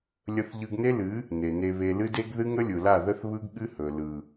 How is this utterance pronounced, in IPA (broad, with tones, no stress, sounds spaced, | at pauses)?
lʲ ə˧ θ ʎ ɯ˧ ɡ n e˦ l ɨ˨˦ | n e˨ n e˧ β e˧ l ɨ˦ d e˦ ɡ ð ɨ˦ ŋ ə˦ lʲ ɯ˨ l a˦˨ ð ə˦ θ β ɯ˦ ɡ ɠ ɨ˦ h ɵ˨ l ɯ˨